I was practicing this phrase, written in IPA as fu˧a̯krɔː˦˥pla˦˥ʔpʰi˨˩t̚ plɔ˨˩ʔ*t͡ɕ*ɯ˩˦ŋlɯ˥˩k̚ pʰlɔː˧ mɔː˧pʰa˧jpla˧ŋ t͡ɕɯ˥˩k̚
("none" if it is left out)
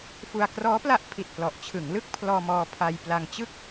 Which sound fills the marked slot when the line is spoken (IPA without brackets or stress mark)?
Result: t͡ɕʰ